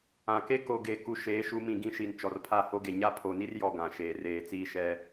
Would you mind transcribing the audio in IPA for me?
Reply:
ã˨ k e˦ k o˨ ɡ e˨ k u˦ ʃ eː˨˦ ʃ u˨˦ m ĩ˨ ɡ ĩ˦ ʃ i˨ n t͡ʃ ɔ˨ r pʰ a˦˨ h o˦ ɡ e˨ ɲ a˦ pʰ o˨ n i˦ r j ɔ˨ ɡ ã˨ ʃ eː˨ r eː˨ t͡s iː˦ ʃ ɛ˦

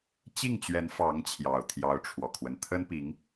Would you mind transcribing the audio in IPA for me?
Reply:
t͡ɕ i˥˩ ŋ t͡ɕ ɥ ɛ˧˥ n f ɑ˧˥ ŋ t͡ɕʰ j ɑ˨˩ ʊ̯ t̪ʰ j ɑ˧˥ ʊ̯ ʈ͡ʂʰ w ɔ˨˩ kʰ w ə˦ n t̪ʰ ə˥ n p i˧˥ ŋ

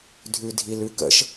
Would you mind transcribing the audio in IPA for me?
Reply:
dʱ ʉ dʱ i l ʉ k ə̰ ʃ

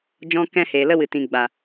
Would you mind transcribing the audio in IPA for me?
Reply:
d͡ʒ ɔ̃˧ k ɛ̃˧ h eː˨ l ə˧ w ɨ˨ t ĩ˨ ɡ͡b a˨

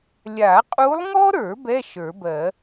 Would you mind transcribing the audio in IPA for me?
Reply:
lʲ a˨˩˦ qʼ u˧˥ lˠ ŋ ɔ˥ ɾ ə˞˨˩˦ b ɛ˧˥˧ ʃ ə˞˨˩˦ b ɜ˨˩˦

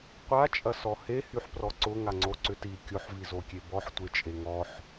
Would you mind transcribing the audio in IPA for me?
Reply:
qʷ a t͡ʃʼ ɐ s ɔ h e h y ħ p r ɔ ǀ ʊ ŋ a ŋ͡ǀ o ǀ ʏ t i kʲ o ħ v i z o kʲ e b ɔ ħ tʷ e t͡ʃʼ e ŋ ɔ ħ

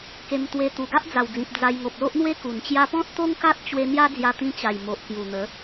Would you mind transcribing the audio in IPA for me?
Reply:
k e˧ m t̪ w e˧ t̪ u˨˩ ɡ a˦ ʔ d͡z a˨˩ w d͡z ĩ˨ p̚ d͡z a˧ j ŋ o˨ p̚ l o˦ ʔ n̪ w e˦ k u˨˩ n t͡ɕ j a˦ p ɔ̃˦ t̚ t̪ o˦ ŋ k a˦ t̚ t͡ɕ w e˧ n̪ j a˦ d͡z j a˧ t̪ ĩ˧ t͡ɕ a˨˩ j m o˨ ʔ k j u˨˩ n̪ ə˨˦

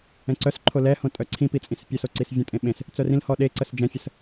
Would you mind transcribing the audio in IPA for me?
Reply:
ɛ̃ ǀ œ s ǃʰ o l ɛ h õ tʼ œ ǀʰ ĩ p i t͡sʼ ĩ s pʲ œ s o ǀ i s vʲ ə̃ tʼ ẽ ɓ ẽ s | t͡s œ r ĩ l h ɔ ɗ e ǀ ə s d͡ʒ ɛ̃ fʲ ə s

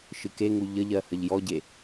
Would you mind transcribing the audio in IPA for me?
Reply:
ʃ ɨ k e ŋ u ʎ ə ʎ ɜ h ə ʎ j ɔ ɟ e

